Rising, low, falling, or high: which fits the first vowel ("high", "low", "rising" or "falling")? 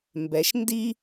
rising